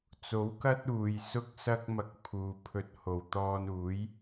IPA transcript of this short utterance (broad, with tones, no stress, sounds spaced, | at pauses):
t͡s o˨˥ w k ɐ˥ t̚ uː˨ j s ʊ˥ k̚ s ɐ˥ k̚ m ɐ˧ k̚ pʰ uː˨ pʰ ɵ˧ t̚ h o˨˩ w t̪ ɔː˧ n uː˨˥ j